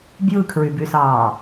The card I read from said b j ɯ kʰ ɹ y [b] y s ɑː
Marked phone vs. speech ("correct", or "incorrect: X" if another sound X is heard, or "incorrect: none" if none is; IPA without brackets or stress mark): correct